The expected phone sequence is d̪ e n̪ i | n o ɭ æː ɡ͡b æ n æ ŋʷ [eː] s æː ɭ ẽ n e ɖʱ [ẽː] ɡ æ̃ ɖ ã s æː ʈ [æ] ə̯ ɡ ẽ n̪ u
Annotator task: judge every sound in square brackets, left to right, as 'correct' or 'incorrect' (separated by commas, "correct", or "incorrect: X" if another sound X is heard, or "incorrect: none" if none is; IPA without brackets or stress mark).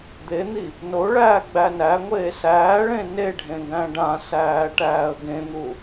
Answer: correct, incorrect: ẽ, incorrect: æː